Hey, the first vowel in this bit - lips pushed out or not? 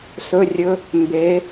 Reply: yes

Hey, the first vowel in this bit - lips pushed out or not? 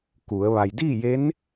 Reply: yes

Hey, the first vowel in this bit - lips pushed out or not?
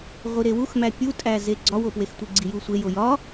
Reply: no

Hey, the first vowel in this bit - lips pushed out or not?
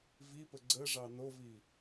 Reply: no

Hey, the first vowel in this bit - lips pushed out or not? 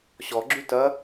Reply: yes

